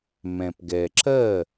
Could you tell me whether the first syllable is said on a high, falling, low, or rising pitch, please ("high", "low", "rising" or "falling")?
low